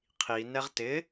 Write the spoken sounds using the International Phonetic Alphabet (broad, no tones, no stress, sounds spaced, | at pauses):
qʰ i n ɛ ʁ t ɪ